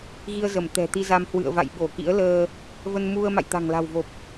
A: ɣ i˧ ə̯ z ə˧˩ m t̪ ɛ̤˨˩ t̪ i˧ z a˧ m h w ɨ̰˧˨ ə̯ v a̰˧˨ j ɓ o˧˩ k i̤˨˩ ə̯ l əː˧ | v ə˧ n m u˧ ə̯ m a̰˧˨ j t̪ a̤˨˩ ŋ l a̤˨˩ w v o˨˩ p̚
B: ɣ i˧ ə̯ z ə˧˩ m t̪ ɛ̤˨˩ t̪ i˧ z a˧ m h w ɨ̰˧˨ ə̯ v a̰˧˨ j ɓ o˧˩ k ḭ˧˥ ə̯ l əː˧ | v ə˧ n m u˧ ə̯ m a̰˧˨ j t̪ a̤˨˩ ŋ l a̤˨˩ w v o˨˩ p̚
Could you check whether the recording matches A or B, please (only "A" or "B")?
B